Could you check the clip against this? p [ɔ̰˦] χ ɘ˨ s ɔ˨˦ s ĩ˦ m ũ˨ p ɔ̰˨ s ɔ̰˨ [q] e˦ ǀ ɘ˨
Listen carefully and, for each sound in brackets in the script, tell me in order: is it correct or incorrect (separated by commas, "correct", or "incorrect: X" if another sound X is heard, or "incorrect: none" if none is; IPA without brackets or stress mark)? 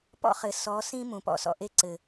correct, incorrect: ʔ